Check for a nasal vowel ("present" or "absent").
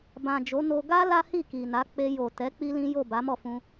present